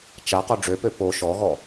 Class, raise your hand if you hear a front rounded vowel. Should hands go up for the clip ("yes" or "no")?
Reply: yes